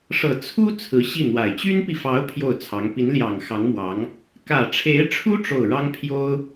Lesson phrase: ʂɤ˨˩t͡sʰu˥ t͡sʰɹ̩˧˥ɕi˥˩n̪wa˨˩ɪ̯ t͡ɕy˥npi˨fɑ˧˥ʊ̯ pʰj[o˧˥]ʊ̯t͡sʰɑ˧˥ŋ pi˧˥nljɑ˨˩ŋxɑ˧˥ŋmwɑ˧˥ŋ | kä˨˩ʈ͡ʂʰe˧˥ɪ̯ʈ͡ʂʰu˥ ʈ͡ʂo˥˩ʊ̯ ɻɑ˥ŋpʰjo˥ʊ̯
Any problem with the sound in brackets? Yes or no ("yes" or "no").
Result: yes